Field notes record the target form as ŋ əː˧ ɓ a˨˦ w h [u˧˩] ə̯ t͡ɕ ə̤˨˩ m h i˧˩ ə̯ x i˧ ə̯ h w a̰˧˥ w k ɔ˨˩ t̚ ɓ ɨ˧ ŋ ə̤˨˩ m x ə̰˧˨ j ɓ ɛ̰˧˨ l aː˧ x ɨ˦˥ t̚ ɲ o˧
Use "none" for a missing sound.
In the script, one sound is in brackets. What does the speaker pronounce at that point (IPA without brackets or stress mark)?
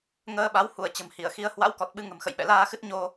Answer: u˧˩